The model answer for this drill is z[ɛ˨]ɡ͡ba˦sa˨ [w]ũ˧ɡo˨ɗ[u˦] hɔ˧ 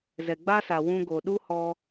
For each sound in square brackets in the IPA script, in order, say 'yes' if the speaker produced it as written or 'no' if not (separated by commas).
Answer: yes, yes, yes